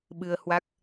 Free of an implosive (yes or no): no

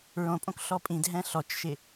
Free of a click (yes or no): yes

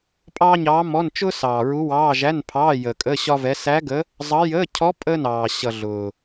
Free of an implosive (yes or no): yes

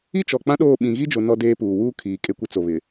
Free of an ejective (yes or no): no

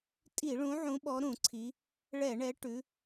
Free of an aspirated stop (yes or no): no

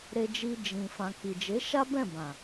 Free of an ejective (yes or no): yes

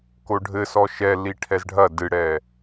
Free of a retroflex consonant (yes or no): no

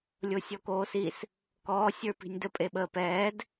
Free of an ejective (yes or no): no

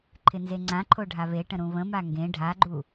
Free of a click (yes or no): no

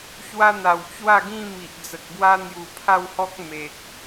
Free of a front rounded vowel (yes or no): yes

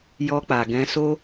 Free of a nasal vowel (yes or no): no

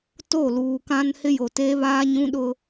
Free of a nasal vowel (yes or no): no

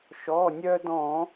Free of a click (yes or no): yes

